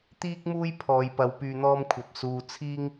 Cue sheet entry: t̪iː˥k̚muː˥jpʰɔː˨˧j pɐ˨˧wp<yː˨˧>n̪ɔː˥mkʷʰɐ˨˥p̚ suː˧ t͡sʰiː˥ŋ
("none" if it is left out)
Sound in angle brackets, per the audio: yː˧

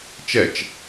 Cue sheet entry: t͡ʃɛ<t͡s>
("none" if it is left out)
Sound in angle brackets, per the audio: t͡ʃ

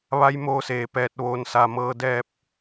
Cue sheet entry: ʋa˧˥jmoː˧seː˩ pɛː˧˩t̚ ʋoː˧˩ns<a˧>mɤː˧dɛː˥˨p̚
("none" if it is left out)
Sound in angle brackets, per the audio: a˧˩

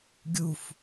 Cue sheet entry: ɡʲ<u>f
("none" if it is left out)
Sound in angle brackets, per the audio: u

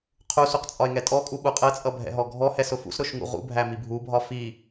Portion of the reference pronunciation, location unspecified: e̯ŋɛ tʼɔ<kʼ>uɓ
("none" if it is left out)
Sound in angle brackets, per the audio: kʼ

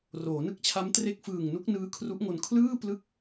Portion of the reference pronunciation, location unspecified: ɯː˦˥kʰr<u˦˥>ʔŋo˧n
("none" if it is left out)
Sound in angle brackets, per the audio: u˦˥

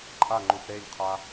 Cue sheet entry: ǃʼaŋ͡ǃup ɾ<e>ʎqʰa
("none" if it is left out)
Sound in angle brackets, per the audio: e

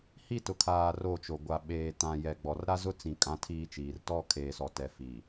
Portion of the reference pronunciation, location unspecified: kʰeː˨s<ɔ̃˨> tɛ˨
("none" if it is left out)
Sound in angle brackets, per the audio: ɔ˨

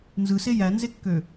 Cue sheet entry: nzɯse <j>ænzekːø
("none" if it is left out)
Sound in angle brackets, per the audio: j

